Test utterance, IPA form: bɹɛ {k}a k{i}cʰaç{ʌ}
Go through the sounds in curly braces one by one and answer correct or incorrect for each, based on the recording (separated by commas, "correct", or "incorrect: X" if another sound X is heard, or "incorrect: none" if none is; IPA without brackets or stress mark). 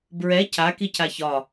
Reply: incorrect: cʰ, correct, incorrect: ɒ